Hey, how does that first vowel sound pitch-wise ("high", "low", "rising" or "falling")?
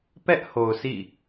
high